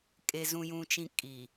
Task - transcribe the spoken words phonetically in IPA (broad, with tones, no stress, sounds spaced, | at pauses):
kʼ e˨ z ũ˨ j ũ˨ t͡ʃ ĩ˨ kʼ i˨